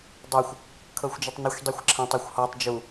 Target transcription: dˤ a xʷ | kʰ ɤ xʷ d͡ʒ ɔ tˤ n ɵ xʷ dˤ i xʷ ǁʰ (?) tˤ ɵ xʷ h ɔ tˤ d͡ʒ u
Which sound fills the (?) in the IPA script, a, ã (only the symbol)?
ã